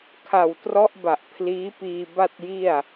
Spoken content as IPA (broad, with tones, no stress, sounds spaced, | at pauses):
kʰ a˨˩ w t r ɔ˦˥ ʔ b a˨˩ ʔ pʰ l iː˦˥ p iː˧ b a˥˩ t̚ j i˥˩ a̯